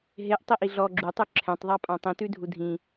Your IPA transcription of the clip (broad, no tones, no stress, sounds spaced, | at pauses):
ɦ e ʔ tˤ i ʔ i ɮ ɔ ɡ͡ǁ u tˤ ʉ ǁʰ ɛ̃ tˤ ðˤ a pʼ ã tˤ ĩ t ʉ dʱ u dʱ ĩ